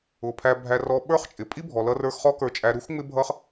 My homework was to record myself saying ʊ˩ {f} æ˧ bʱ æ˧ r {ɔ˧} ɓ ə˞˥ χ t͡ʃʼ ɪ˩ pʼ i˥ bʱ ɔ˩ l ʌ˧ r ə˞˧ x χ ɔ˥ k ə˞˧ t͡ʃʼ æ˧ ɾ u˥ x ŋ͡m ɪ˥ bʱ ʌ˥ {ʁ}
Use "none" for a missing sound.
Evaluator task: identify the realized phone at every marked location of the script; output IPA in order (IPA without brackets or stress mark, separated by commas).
pʰ, ɔ˧, χ